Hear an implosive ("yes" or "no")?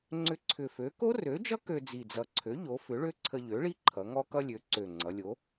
no